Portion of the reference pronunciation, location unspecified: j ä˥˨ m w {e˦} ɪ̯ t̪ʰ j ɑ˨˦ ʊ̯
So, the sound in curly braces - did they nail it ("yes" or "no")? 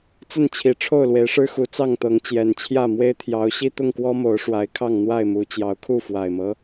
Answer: yes